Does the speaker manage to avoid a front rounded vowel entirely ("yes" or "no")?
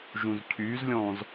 no